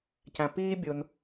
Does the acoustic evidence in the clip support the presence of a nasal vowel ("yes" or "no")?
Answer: yes